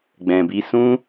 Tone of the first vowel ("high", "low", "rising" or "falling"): low